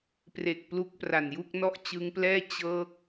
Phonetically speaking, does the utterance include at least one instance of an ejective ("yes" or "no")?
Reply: no